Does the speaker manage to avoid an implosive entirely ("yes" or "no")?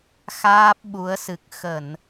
no